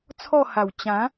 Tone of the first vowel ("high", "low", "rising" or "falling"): falling